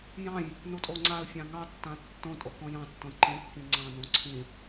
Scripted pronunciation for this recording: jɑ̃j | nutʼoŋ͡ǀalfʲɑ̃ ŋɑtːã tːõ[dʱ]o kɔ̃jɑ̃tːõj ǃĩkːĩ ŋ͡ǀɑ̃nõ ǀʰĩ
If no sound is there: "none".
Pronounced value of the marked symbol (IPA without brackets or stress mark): tʼ